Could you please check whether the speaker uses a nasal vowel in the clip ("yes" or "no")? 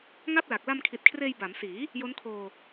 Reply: no